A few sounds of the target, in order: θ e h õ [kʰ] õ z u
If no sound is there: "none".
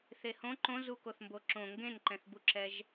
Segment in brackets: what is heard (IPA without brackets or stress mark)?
ǃ